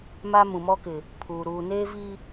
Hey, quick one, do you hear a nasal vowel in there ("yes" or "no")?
yes